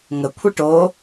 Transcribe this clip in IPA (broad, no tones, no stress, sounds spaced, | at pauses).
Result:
ŋ ə kʷʰ i ʈ o